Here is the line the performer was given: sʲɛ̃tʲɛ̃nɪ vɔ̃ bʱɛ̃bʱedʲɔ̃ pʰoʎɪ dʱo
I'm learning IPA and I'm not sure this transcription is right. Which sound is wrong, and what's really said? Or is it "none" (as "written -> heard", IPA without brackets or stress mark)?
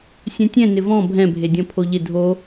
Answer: none